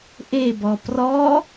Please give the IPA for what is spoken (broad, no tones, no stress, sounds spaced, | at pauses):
ʔ e b ɔ p r ɔ